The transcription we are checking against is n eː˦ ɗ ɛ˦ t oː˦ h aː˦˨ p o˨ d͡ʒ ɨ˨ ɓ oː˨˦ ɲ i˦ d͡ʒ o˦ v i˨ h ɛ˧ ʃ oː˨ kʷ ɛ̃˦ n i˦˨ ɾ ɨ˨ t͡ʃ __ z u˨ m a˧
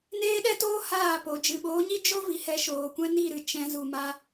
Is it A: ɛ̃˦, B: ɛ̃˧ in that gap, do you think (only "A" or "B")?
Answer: B